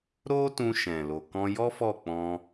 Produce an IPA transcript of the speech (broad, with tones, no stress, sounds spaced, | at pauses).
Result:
ɾ o˦ t ũ˧ ʃ ɛ̃˨ l o˨ k ɔ̃˧ j ɔ˦ f ɔ˦˨ k͡p ɔ̃˧